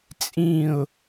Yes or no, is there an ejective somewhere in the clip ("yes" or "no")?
yes